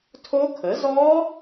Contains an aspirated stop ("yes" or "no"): yes